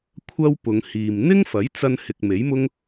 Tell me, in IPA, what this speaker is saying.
kʷʰ ɐ˥ w p ʊ˨˧ ŋ h iː˨ m n̪ ɪ˥ ŋ f ɐ˨˥ j t͡s ɐ˧ n h ɪ˨ k̚ m e˨˥ j m ʊ˥ ŋ

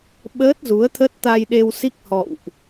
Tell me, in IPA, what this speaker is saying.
ɓ əː˦˥ t̚ z u˨˦ ə̯ t̪ʰ ə˦˥ t̚ t̪ a˧ j ɗ e˧ w s i˦˥ k̚ h ɔ̰˧˨ w ʔ

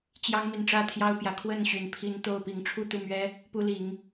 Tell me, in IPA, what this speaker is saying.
t͡ɕ j ɑ˦ ŋ m i˨ n ʈ͡ʂ ä˥˨ t̪ʰ j ɑ˦ ʊ̯ p j ä˨˩ kʰ w ə˥˨ n ɕ y˨˩ n pʰ i˦ n t̪ o˥˨ ʊ̯ p i˨˦ ŋ ʈ͡ʂʰ u˥˨ t̪ u˥˨ m ɥ ɛ˦ | p u˦ l i˨˦ ŋ

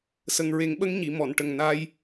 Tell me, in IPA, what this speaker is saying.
s ə˨˩ ŋ ɹ e˨˩˦ ŋ ɓ ə˧˥ ŋ ɲ i˨˩˨ m ɔ˨˩˨ n ʈ ə˨˩ ŋ n a˧ j

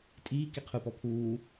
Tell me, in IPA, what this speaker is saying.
tʼ iː k i qʰ u p ɔ pʰ uː

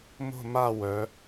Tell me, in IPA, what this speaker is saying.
m o̤˦˨ m a˦˨ w œ˩˧

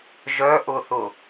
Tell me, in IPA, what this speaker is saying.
ʒ œ ʔ ʊ θ ʊ

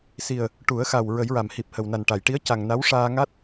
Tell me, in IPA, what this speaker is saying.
s i˨˩ ə̯ | ʈ u˨˩˦ ə̯ x a˨˩ w ɹ ə˨˩˦ j ɹ a˨˩˨ m h i˨˩ p̚ h ə˨˩ w n a˨˩ n ʈ a˨˩˨ j ʈ i˧˥ ə̯ c a˨˩ ŋ n a˧˥ w ʂ aː˧ ŋ a˦˥ t̚

